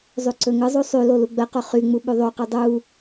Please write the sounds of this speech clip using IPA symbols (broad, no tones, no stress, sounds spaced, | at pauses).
zˤ y ǀ ɵ ŋ ɯ zˤ u sˤ y l o l u ɡ͡b ɜ q o χ y ŋ͡m u ɓ y ðˤ o q ɯ dˤ u